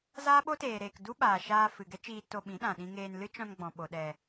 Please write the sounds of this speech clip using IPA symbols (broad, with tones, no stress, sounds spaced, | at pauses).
z aː˦ ɓ o˦ t eː˨ ɾ eː˨ k d u˦ ɓ aː˨ ʃ aː˧ f ɨ˨ ɡ ɛ˦ t͡ʃ iː˧ t o˧ ɓ ĩ˨˦ ɗ ã˨ ɗ ĩ˧ ŋ eː˧ n l ɨ˦ t͡ʃ ɔ̃˧ n ɡ͡b ɔ̃˨ ɓ o˨ ɗ ɛ˨